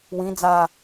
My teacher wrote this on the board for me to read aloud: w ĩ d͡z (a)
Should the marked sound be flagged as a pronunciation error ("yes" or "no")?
no